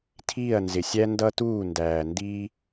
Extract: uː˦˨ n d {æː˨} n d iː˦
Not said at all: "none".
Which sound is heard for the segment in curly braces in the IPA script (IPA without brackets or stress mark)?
æː˨